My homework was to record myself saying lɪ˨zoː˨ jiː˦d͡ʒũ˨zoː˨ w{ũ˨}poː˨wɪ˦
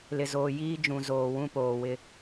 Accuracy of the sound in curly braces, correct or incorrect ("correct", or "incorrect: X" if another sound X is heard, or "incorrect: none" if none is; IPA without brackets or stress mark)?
incorrect: ũ˦